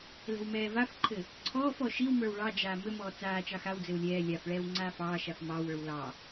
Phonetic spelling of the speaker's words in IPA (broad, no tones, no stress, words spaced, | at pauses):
lɛ̤wmɛːvafǃʰɘ | ǀʰɔːfɔ ʃiwmə˞w ɭɑd͡ʒaː mɘmɔː t͡saː t͡ʃɑxawd͡zɘw lʲɛː lʲafɭɛːw ŋ͡ǀaːfɑːʃaf mɑwə˞w lɑ